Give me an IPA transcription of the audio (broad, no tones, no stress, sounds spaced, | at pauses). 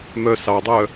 m œ s ɑ dˤ œ